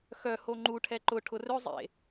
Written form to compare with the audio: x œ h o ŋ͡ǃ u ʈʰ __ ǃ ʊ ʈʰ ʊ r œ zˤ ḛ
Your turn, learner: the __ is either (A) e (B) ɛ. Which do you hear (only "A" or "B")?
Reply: B